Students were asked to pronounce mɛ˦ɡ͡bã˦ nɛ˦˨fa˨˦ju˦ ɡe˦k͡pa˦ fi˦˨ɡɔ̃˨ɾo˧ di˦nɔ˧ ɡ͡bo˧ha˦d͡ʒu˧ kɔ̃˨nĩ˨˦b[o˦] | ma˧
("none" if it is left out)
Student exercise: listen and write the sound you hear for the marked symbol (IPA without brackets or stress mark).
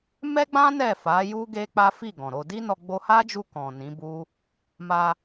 u˦